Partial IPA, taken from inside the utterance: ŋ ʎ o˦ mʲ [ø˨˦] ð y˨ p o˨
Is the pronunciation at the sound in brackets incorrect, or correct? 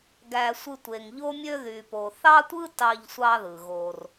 incorrect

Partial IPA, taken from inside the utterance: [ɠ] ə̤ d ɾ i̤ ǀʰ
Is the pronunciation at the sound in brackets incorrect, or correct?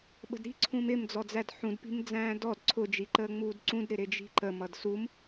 incorrect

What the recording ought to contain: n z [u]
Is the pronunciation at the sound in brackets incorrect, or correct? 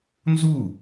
correct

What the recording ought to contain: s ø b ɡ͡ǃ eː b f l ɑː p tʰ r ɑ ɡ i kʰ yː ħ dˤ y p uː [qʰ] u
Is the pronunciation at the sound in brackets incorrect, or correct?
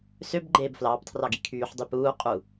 incorrect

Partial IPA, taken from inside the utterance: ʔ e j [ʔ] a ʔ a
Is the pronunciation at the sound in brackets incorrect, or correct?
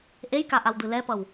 incorrect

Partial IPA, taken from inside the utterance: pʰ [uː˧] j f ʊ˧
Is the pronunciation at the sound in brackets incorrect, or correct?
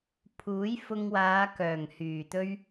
incorrect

